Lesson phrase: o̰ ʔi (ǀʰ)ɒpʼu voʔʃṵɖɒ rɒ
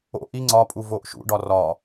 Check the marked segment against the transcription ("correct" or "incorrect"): incorrect